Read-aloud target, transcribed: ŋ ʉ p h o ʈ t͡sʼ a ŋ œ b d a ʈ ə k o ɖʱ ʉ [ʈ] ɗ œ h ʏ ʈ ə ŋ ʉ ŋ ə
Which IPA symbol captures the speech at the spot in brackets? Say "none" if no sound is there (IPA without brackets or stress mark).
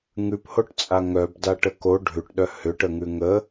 ʈ